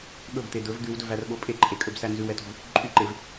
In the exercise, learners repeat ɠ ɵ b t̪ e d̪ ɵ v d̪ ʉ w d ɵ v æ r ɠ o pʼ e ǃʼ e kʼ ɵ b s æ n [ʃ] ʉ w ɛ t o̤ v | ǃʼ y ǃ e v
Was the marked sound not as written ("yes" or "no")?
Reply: yes